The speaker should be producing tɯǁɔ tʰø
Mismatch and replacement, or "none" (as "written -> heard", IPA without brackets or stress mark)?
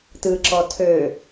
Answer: none